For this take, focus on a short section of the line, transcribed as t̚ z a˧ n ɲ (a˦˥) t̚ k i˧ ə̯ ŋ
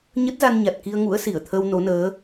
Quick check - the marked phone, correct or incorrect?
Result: incorrect: a˨˩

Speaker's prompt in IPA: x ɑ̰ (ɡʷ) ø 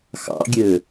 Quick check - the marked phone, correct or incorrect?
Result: incorrect: ɡʲ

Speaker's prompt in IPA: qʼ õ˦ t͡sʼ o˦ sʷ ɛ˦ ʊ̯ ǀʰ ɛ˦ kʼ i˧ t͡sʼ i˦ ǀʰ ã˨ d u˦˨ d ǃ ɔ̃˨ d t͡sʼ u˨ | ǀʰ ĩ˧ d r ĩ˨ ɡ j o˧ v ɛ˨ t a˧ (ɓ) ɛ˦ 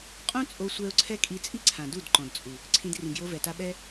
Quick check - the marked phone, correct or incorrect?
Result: correct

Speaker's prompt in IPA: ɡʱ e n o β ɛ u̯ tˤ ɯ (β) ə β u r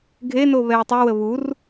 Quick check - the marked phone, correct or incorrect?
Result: incorrect: w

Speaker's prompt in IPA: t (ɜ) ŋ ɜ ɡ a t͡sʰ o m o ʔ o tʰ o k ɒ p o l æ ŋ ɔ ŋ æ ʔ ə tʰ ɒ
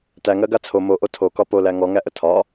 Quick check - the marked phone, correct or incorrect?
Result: incorrect: æ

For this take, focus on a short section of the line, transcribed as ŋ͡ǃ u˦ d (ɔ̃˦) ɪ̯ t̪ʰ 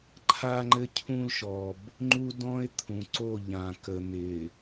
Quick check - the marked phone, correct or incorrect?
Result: correct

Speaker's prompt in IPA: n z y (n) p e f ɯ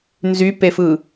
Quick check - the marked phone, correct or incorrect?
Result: incorrect: none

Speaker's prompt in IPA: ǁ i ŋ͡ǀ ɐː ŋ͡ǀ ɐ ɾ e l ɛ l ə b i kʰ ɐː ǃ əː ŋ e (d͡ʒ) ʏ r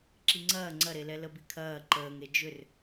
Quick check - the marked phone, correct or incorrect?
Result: correct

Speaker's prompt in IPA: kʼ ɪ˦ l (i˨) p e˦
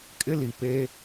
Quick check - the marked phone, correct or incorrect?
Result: correct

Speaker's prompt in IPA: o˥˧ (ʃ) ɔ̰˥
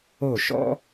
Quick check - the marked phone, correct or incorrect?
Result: correct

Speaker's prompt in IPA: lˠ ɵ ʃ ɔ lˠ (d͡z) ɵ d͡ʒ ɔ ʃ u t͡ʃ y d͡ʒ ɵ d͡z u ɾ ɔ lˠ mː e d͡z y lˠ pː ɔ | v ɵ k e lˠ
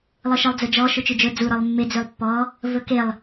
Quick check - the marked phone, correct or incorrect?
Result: correct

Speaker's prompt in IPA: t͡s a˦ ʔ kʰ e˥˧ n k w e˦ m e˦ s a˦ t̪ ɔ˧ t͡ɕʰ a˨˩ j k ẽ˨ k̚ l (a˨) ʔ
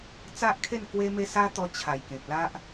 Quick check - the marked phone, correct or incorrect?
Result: incorrect: a˦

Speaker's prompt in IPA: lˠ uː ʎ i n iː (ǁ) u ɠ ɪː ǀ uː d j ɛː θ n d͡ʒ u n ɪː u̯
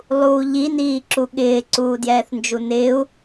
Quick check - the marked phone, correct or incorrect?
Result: correct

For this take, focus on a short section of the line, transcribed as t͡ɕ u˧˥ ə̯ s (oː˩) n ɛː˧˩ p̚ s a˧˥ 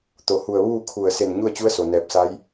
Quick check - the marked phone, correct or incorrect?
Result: incorrect: o˩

